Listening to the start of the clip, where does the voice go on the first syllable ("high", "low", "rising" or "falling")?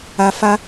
low